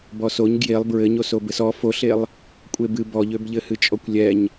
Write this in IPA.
bɔsoɲ ɡjelˠ bɹɘɲoso bɘsɔ foɬelˠ | kʷʼebɨ bɔʎøbʎɘ hɨt͡ʃʼɔkʷlʲɛɲ

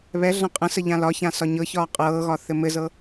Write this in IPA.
βɛ ɮãqʼə̃sə ʎãlɒçã sɒɲɤçɒː qʼɤːɣɒ θɘmɘzɤ

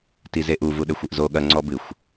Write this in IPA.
tizeʔu vuɗɘxʷɨʔzo ɠɐ ŋ͡ǀɔbɨxʷ

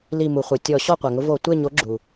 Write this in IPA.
li˧˩mu˩χʷœ˩ tʲɔ˧˩˧ ɕɔ˥˨qʷa˩ŋʊ˥ vo˧˩˧tʷe˥˨ ɲo˨˥ɡ͡ǁu˩

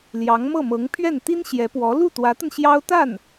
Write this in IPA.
ljɑ˧˥ŋmɤ˥˩mɤ˧˥ŋ pʰɥɛ˥˩nt̪i˥nɕjɛ˧˥pwɔ˧˥ lu˥˩t̪wä˧˥t̪ə˧n ɕjɑ˥ʊ̯ t̪a˥˩n

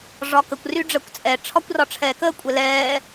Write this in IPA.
ʐɒkəkʷ ryɖ͡ʐəːkʷt͡sʼɛ ʈ͡ʂʰɒkʷrɒʈ͡ʂʰɛːkəː kʷʼɛlɛː

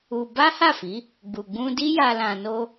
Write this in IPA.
u˧ ba˦ha˦˨fi˨˦ | ɡ͡bu˨ɡ͡bũ˧di˦ja˧ lã˧no˦

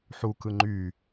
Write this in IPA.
ħukɯ ŋ͡ǃy

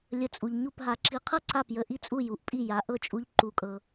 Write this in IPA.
lʲə˩˥t͡sʼu˩ʎ ɲu˥˩pɦa˧ ǁi˧ qʰɤ˥ǀa˥˩pjə˧ ʔi˥˩t͡sʼu˥˩ ju˩˥ʔpʼi˥˩ ja˩˥ʔɤ˥˩t͡ʃʼu˧ʎ ǃu˧kʼɤ˧

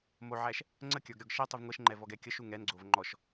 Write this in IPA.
moʕæʃ | ŋ͡ǀəkʲə˞ɡ ɾʲɔɡʃɛ tˤuvŋʷɛʃŋ͡ǃɛvɔɡ ɛkʲəʃu ŋɛnɡ͡ǀov ŋ͡ǃɔʃ

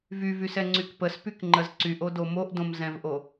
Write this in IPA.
vyvysɛŋ͡ǀyk pəspykŋ͡ǃəz ǀyʔodo moʔdõmzɛ̃vʔo

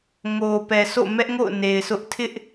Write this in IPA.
ŋo˨ pɛ˨sʰo̰˦˨ mɛ˦ʔŋo̰˦˨ʊ̯ ne˨ɪ̯sʊ˦ʔ tʰɪ˦ʔ

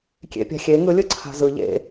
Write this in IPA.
kʲḛpʲa̤xʲe ŋɯ lʲɯǀʰa̤zɯ ʎḛ

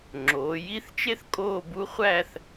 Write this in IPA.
ŋ͡ǁoː˩˧ji˥˧θt͡ʃe˥θ kʼoː˥˧bu˥ χʷæ˥˧θ

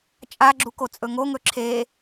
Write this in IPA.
t͡ʃʼaɡ͡ǁuko t͡sʼɵŋoŋɵ ǁʰe

